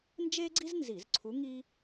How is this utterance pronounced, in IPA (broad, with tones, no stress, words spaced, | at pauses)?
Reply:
nd͡ʒe˥ɡ͡ǀi˥z nzi˧˩˧zǀʰu˧˥ ŋi˥